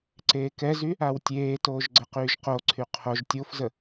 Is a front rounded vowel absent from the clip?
no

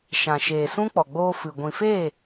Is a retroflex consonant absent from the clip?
yes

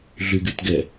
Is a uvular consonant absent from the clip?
yes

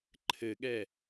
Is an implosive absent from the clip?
no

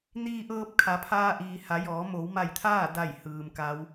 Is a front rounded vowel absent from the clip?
yes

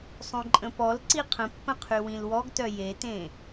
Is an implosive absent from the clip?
yes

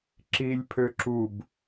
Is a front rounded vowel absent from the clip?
no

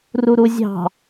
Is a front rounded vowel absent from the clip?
yes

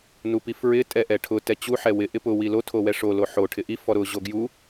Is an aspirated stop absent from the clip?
no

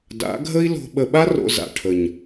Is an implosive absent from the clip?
no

